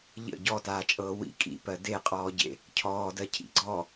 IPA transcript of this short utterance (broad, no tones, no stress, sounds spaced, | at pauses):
ʎ ə̰ ɟ ɔ t aː t͡ʃʼ ɤː w ḭ kʼ ḭ p ɜ d e qʼ ɔː ɟ ḛ | cʰ ɔː d ɜ cʰ ḭ ɡ͡ǀ ɔ